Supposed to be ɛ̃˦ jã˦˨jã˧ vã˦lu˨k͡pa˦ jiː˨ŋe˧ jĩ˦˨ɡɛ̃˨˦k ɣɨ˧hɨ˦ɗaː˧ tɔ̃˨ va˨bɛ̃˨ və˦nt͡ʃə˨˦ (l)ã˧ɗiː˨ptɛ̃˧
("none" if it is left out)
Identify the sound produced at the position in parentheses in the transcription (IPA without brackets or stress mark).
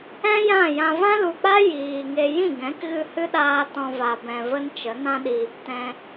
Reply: n